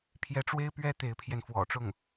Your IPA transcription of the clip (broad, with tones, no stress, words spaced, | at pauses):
pʰjɛ˧˥ʈ͡ʂwe˥ɪ̯pɥɛ˥ t̪e˧˥ɪ̯pʰjɛ˧n fwɔ̰˨˩ʈ͡ʂʊ˥˩ŋ